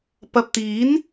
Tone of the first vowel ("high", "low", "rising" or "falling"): low